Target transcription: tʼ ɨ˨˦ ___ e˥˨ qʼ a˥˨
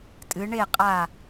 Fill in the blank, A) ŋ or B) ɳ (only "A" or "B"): B